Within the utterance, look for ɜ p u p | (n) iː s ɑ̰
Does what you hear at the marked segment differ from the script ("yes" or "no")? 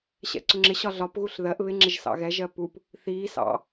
yes